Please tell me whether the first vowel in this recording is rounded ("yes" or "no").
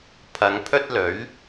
no